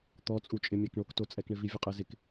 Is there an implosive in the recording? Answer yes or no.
no